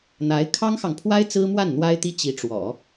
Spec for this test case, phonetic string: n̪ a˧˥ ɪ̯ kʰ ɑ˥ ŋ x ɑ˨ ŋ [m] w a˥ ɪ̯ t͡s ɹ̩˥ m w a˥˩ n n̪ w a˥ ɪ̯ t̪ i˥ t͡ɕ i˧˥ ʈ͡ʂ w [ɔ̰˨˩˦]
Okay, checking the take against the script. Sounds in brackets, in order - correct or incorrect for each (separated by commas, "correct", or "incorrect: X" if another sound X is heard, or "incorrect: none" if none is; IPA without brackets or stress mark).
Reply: incorrect: pʰ, correct